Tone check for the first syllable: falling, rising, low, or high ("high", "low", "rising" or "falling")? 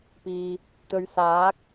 low